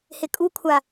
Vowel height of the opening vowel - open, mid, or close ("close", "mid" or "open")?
close